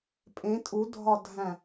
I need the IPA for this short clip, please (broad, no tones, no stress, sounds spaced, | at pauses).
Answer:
pʼ ẽ tʼ u dʱ ɒ dʱ æ̃